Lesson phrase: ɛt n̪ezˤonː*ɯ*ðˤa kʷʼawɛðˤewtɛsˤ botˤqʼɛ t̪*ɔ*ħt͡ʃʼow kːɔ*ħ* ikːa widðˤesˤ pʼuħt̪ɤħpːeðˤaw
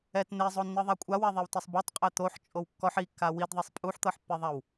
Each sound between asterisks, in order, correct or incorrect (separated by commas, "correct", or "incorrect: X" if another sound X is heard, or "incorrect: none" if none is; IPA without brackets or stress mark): correct, incorrect: o, correct